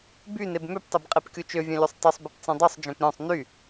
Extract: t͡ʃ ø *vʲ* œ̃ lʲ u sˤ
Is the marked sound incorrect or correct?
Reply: correct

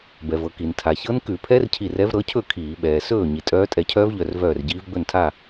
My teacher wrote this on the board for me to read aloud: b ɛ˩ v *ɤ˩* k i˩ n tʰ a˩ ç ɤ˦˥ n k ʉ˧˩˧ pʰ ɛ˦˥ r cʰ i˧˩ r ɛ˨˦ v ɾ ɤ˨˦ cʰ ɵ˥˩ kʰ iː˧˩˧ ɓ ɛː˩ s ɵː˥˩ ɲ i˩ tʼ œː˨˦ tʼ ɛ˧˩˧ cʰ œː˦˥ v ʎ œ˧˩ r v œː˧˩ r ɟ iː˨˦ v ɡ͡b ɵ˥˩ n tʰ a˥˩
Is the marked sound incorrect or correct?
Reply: correct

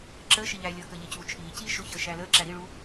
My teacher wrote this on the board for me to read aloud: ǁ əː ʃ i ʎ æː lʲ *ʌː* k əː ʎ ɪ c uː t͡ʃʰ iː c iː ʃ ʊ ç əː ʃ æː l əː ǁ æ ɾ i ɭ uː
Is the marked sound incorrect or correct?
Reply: correct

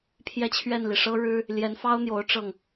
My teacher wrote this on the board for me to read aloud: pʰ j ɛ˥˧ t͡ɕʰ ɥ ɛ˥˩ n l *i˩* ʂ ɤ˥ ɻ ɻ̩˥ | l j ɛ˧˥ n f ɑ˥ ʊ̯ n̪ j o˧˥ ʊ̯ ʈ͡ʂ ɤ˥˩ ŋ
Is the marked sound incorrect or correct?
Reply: correct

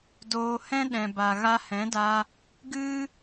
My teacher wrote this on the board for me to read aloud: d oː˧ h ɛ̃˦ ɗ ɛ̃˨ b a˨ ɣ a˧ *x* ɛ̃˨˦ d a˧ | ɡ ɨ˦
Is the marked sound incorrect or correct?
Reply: incorrect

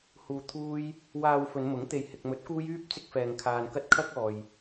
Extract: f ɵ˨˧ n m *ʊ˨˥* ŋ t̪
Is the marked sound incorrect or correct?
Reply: correct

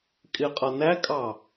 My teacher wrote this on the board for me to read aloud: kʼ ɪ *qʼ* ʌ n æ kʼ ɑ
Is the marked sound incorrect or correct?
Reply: correct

